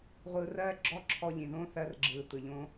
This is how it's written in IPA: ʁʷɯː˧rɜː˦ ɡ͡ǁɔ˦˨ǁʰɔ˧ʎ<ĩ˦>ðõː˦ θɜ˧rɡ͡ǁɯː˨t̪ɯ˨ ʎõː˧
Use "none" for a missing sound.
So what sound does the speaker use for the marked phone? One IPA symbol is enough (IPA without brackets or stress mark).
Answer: ĩ˨